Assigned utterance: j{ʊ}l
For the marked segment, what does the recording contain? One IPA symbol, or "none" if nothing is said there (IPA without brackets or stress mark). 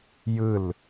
ɯ